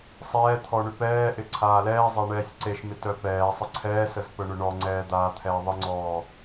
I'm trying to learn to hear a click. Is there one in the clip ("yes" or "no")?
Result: yes